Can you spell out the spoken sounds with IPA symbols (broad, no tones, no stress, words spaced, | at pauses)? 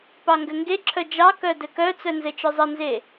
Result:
pɑŋɡɘŋɡeǁʰœ d͡ʒɑkœ dɘkœt͡sœ nzɘt͡ʃœzˤɘnze